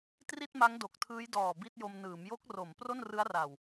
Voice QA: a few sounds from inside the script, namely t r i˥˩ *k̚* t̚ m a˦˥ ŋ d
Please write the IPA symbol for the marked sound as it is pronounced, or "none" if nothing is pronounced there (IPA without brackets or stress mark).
none